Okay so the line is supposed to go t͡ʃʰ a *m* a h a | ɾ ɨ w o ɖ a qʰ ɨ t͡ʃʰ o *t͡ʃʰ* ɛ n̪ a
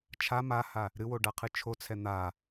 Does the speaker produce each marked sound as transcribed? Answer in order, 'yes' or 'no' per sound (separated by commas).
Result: yes, no